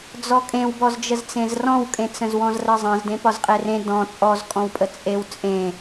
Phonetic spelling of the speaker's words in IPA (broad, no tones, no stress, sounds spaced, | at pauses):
d͡z ɔ kʼ ẽ w b ɔ z d͡ʒ ə z t͡s ẽ z r ɔ̃ w kʼ ẽ t͡s ə̃ z w ɔ̃ z r ə zˤ ə̃ z d ẽ p ɒ z qʼ e r ẽ d ɔ̃ t͡sʼ ɔ z kʼ ɔ̃ w pʼ ə t͡sʼ e w t͡sʼ ẽ